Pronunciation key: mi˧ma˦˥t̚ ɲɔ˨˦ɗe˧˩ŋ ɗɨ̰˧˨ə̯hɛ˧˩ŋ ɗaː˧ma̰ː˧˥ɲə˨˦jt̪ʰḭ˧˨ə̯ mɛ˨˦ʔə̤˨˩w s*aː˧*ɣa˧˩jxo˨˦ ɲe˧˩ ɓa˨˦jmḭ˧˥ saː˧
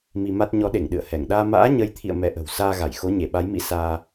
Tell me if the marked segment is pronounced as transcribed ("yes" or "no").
yes